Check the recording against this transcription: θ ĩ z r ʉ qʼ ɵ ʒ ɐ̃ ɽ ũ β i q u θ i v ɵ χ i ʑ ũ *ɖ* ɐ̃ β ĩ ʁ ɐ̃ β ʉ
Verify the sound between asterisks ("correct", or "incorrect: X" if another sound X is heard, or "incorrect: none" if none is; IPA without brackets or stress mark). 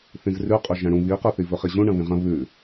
incorrect: ɳ